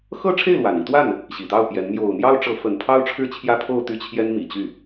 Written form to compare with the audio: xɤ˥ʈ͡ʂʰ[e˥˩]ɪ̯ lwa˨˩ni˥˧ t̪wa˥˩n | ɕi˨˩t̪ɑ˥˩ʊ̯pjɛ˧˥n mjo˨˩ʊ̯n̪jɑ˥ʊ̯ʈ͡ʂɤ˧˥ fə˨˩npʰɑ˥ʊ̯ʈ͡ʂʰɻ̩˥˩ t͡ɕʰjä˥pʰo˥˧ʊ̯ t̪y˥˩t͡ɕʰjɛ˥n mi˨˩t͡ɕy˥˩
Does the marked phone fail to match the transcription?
no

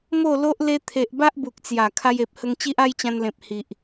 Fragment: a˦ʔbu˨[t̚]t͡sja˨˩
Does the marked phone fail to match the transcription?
yes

